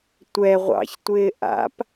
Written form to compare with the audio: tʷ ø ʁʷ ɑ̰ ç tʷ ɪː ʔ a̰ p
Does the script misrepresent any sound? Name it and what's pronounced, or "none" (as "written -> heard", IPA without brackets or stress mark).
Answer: ø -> ɛ